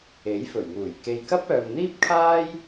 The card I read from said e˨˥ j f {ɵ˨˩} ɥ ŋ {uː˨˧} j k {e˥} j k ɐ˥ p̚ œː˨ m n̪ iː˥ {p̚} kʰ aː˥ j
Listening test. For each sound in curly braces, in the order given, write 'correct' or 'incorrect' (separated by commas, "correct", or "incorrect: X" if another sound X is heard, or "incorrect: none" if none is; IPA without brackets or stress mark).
correct, incorrect: uː˨˩, incorrect: e˨, correct